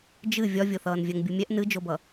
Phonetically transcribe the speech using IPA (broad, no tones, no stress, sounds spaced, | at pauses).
d͡ʒ ɨ vʲ ɒ vʲ o θ ʌː n vʲ ɜ ŋ bʲ u mʲ ɛ ʔ n ɨ d͡ʒ o b ʌ